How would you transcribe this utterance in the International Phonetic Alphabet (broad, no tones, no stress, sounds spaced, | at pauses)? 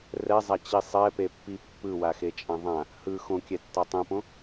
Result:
r ɛ zˤ a t͡ɕ i sˤ ɛ p e pː i pː ɯ w a x e t͡ʃʼ ã ðˤ ã | h ɯ x õ kʲ ɛ tː a tˤ ẽ p õ